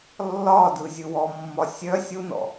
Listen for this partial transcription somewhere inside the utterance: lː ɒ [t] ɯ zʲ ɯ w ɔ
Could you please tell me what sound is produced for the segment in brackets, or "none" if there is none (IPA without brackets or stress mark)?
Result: d